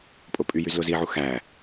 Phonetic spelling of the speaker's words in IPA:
pʼ o pʼ y j y z l o z i ʕ u x æ

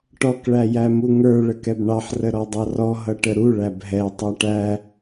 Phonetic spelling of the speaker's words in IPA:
ʈ ɔ k ɭ æ j æ m u ŋ ə˞ ɭ ə k ɛ b ɳ ɑ ħ r ə ɾ ɔ dˤ ɑ r ɔ ɦ ʌ ʈ ə ɾ u ɭ æ b ɦ ɛ tˤ æ ʈ æ

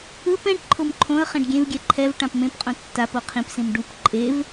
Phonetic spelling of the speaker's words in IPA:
ɯ p ɛ̃ ʈ ǃʰ o m ǃʰ õ ə̯ χ ɛ̃ ɖ ɡʲ ẽ v ɡʲ ɛ ǃʰ ɛ v ʈ ã p m ẽ p qʼ õ tː a p o qʰ ĩ p s ĩ m ɖ u p ǃʼ e v

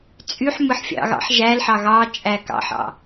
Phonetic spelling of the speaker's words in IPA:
t͡sʼ y ħ m ɯ ħ fʲ ɑ̰ ɣ ɑ̰ ħ ʒ æ l ħ ɑ ɣ ɑ t͡ʃʼ æ k ɑ̰ ħ ɑ̰

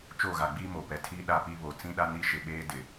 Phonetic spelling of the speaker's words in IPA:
t͡ʃ o˦˨ ɣ a˨ ɡ͡b iː˦ m o˨ p ɛ˨ tʰ iː˦ ɗ a˦ p i˦ β o˨ t͡s ĩ˦ ɗ a˦ n i˦ ʃ ɪ˨ ɓ eː˦ d ɪ˨

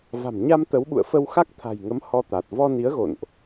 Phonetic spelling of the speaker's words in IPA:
v a̤˨˩ m ɲ a˧ m t̪ ə˨˦ w ɓ ṵ˧˨ ə̯ f ə˧ w x a˦˥ k̚ t̪ʰ a̤˨˩ j ŋ ə˨˦ m h ɔ˧ t̪ a˨˩ t̚ v ɔ˧ n i˨˦ ə̯ ɣ o̰˧˨ n ʔ

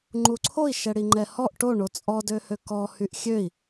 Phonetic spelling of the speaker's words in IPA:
ŋ͡ǃ u ǀʰ o i̯ ʃ ɛ ɽ i ŋ͡ǃ ɛ h ɔ ʔ ʈ o ɳ o t͡sʼ ɔ d ø h ø k ɔ h y ʔ xʲ ø i̯

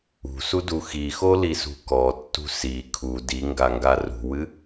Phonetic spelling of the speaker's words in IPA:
ṳ s u d u x i x o l i s ṳ k ɔ tː ṳ s i kʰ u d i ŋ ɡ a ŋ ɡ a r ṳ w ɨ

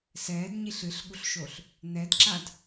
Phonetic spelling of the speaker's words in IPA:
s ɛː d ɲ i ɬ ɨ ɬ ɠ u ɬ ʃ o ɬ | n ɛ d ǁ a d

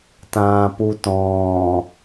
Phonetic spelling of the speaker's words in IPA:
t ãː p u t ɔ̃ː

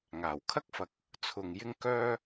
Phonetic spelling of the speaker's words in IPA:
ŋ aː˨˩ w kʰ ɐ˥ k̚ f ɐ˨ k̚ | t͡sʰ ʊ˨ ŋ j ɪ˥ ŋ k œː˥

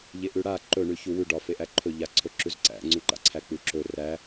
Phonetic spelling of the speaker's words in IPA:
ʎ e ʔ ʉ ɽ a ǃ ɵ ɳ ʉ ç u w ʉ ɖ ɒ f e ʔ æ ǃʰ ɵ ʎ a ǀʰ ɵ ǁ ʉ z ǀ æ̰ ŋ͡ǀ ʉ ǃ a̰ ǀʰ æ k͡p ʉ ǁ ɵ r æ

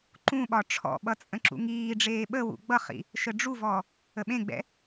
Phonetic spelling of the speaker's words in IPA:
ǃ ũ ɓ ɒ ʈ͡ʂʰ ɔ̰ ɓ ʌ t͡sʼ ə̃ ǁ ṵ ŋ iː ɖ͡ʐ eː ɓ ə w ṵ ɡ͡b ʌ χ ḭ | ʃ ə ɖ͡ʐ u v ɔ | ə ɓ ẽ ɡ͡b ɛ̰

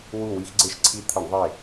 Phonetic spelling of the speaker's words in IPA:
w u˧˩ w i˧ x ɡ͡ǀ e˧ ʃ ǀʰ i˧ t̪ʰ ə˧˩˧ ɳ ðˤ e˧˩

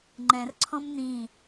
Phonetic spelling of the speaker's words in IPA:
ŋ͡ǃ ɛ̃ r ǀʰ ɔ̃ m n̪ ĩ

